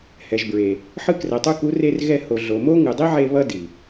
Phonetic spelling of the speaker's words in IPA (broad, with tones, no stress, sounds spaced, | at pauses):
h ɛ˨ ʒ b ɹ e˨ | ħ ɯ˧ k r ɛ˨ tˤ u˧ k u˨˦ r e˧ r ɣ ɛ˧ h o˨ ɮ o˨ m o˦ ŋ ɯ˨ dˤ i˦ ʕ e˧ β ʌ˦ d i˨